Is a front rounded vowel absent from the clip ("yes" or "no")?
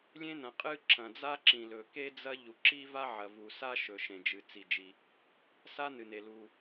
yes